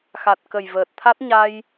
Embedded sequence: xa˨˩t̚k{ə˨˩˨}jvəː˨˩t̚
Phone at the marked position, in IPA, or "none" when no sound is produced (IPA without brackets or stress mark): ə˨˩